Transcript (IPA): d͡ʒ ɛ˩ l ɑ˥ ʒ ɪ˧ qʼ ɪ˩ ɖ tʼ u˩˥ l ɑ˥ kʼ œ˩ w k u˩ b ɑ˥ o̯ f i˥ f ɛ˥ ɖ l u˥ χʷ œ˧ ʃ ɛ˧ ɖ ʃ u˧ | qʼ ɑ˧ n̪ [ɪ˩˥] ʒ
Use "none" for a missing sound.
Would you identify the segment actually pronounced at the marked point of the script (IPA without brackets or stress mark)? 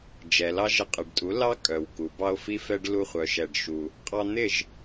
ɪ˥˩